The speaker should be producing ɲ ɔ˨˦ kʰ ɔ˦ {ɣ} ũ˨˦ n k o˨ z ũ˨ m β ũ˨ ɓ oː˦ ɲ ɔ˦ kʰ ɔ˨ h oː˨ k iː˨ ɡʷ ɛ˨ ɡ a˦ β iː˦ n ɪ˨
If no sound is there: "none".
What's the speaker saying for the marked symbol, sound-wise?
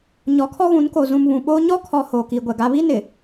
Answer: ɣ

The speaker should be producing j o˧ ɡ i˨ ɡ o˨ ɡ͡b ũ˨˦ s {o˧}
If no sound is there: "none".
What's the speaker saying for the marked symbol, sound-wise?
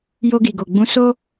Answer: o˦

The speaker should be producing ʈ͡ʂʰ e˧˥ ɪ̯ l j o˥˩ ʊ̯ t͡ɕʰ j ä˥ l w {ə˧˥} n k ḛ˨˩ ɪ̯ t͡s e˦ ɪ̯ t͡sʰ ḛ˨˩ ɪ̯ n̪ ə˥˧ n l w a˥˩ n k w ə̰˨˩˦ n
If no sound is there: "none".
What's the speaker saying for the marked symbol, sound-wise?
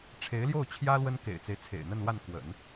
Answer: ə˥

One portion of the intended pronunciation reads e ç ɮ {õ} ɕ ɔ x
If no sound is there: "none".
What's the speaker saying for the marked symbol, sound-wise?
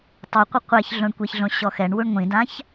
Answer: õ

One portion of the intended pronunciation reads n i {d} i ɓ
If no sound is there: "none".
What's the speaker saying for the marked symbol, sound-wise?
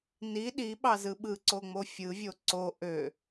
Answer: ɗ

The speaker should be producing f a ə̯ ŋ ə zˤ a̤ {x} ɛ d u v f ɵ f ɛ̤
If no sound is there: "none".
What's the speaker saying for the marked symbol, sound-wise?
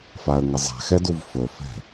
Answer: x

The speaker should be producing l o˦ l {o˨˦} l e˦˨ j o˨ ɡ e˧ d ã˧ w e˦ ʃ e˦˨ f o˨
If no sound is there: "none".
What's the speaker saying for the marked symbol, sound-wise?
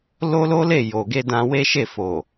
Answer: o˦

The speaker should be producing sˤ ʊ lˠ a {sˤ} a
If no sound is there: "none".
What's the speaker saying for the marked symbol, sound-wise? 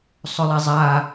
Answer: zˤ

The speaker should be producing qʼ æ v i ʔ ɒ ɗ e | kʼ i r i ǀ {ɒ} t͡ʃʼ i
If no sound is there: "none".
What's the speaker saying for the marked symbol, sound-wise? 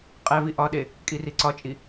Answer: ɒ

